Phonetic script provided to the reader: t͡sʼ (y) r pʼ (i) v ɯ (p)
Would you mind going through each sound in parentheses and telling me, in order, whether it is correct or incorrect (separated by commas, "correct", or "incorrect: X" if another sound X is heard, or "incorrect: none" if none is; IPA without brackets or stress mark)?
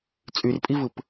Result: correct, correct, correct